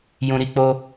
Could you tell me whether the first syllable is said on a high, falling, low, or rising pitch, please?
low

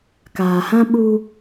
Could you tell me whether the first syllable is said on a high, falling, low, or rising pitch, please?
low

